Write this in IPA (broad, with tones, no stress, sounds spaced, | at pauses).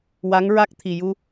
w a˧˥ ŋ ɹ a˦˥ k̚ t̪ʰ i˨˩ j u˧